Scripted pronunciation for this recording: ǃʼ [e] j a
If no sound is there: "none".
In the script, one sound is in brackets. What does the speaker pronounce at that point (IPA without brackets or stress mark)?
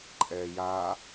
ɛ